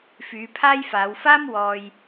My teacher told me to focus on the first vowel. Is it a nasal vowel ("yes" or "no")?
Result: no